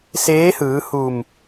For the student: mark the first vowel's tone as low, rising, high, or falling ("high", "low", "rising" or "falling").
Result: rising